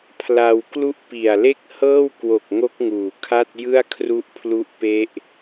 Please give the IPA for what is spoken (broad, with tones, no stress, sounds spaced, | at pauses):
pʰ l a˧ w k l u˥˩ ʔ p i˨˩ a̯ l e˥˩ k̚ h ɤː˥˩ w k w o˨˩ k̚ ŋ o˦˥ k̚ ŋ uː˨˩ kʰ a˥˩ t̚ j ɯ˥˩ a̯ kʰ r u˦˥ ʔ pʰ l u˦˥ ʔ p e˦˥ ʔ